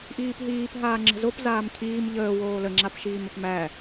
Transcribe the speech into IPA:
ʔ iː p ɦ iː p ɦ aː ŋ͡ǁ ə̤ z o p z aː m cʰ iː m ʎ əː w oː l ə ŋ͡ǁ a p ʃ iː m ə p m æ

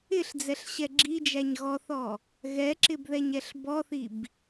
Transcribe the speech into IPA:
ɪ ɬ d͡z ɛ ɬ ɕ ɛ ɡ͡ǁ i d͡ʒ æ ɲ ɣ ɔ θ ɔ | ɣ ɛ ǁ ɪ b ð ɛ ɲ ɛ ɬ b ɔ θ i b

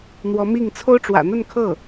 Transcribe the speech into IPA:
n̪ w ɔ˧˥ m i˥˩ ŋ t͡sʰ o˥ ʊ̯ ʈ͡ʂ w ä̰˨˩ n̪ ə˥˧ n kʰ ɤ˥˩

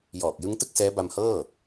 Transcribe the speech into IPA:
j ɔː˨˩ k̚ j ɯ˦˥ ŋ t ɯ˥˩ k̚ s ɛː˦˥ b a˧ m h ɤː˥˩

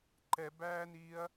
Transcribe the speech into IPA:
ǃ ɛ b æː n iː ɐ̯

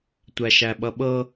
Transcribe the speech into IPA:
tʷ æ ʃ æ ɓ ʌ ɓ ɤ

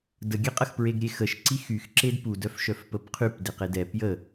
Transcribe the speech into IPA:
d ə ɡʲ ɛ qʼ ə x p ɹ e ɡ ɾʲ e x ə ʃ ǀ i x y x ǁ e d p u d œ f ʃ œ f p ə p qʰ y p d e q e d ɛ p j ə

